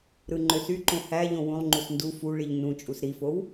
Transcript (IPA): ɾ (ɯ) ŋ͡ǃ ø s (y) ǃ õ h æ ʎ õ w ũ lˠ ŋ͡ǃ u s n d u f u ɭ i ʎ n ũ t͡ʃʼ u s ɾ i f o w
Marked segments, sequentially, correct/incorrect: correct, correct

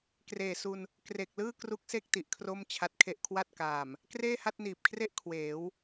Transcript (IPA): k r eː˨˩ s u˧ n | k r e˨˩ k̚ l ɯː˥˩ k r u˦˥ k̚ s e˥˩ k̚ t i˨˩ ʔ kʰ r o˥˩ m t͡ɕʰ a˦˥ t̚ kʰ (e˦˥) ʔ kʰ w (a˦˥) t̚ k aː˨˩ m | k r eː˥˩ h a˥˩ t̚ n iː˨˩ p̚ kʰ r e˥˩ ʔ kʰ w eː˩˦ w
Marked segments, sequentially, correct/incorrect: correct, incorrect: a˥˩

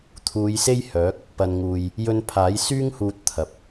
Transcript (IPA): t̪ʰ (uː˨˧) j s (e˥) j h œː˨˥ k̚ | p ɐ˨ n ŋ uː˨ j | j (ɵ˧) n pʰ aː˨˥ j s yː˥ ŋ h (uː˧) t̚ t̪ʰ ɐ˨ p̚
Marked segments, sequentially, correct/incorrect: correct, correct, correct, correct

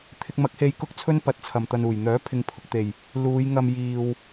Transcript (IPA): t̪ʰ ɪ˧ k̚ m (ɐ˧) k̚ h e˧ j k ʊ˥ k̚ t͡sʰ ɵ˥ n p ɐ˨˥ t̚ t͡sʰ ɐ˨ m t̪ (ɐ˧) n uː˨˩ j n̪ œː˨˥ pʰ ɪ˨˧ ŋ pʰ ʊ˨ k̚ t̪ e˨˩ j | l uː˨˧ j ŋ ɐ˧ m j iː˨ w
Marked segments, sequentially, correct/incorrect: incorrect: ɐ˨˥, correct

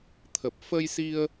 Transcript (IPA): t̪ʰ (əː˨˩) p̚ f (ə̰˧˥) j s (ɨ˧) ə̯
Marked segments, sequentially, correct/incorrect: incorrect: ə˨˩, incorrect: ə˧, incorrect: i˧

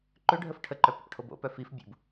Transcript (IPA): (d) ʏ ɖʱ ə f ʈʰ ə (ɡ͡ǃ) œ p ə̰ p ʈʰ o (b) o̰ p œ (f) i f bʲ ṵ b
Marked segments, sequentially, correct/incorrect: incorrect: ǃ, incorrect: ǃ, correct, correct

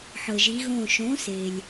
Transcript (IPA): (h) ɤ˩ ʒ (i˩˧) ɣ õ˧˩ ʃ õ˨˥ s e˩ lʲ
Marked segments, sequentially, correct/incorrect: incorrect: ħ, correct

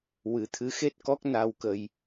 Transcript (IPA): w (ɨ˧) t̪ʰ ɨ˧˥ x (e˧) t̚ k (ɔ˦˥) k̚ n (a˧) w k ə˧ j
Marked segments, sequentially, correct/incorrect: incorrect: ɨ˨˩˦, incorrect: e˦˥, correct, correct

